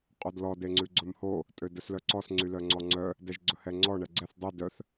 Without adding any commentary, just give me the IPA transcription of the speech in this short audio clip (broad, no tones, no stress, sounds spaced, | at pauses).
qʼ o d l ɔ d e ŋ͡ǀ ʉ ɡ͡ǀ ɵ m h o | tʼ ø d ɵ s l œ ǀ ɔ s ŋ͡ǀ y l œ ŋ͡ǀ ɔ ŋ͡ǀ œ | d ɛ ʒ ɡ͡ǀ ɵ h ɛ ŋ͡ǀ ɔ ɳ ɛ ɡ͡ǀ ɛ θ dˤ y d œ θ